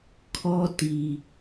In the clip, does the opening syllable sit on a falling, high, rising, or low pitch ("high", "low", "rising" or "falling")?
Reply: high